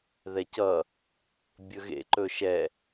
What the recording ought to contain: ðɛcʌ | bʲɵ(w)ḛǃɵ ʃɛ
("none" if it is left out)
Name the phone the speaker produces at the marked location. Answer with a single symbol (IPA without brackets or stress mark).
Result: ɣ